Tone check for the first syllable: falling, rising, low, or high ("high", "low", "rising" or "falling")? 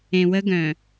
low